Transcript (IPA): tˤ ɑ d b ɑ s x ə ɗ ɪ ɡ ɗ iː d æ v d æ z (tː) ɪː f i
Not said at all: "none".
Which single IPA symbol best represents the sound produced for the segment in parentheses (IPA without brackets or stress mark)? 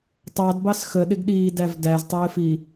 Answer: tˤ